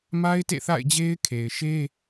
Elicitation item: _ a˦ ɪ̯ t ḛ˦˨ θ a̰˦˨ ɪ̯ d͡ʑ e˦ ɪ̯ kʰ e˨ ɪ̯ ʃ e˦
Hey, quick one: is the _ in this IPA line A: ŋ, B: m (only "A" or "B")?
B